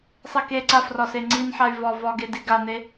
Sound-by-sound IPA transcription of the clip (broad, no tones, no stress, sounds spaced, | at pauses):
sˤ e k e ǀ a f r ɒ s e ŋ͡ǀ i n ħ a y̯ v ɒ v ɒ ɡ e d i ɡ a n e